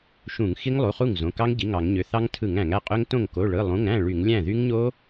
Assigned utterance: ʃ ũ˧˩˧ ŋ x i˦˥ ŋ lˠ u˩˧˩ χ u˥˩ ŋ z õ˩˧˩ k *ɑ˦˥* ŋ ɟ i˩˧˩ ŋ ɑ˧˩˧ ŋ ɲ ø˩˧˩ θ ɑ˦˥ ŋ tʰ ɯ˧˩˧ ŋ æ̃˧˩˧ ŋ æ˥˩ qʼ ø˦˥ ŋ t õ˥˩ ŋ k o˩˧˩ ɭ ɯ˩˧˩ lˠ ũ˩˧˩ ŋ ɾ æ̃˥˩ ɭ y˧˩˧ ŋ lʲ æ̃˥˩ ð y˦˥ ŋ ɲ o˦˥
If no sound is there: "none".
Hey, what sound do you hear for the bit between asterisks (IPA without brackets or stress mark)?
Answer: ɑ˦˥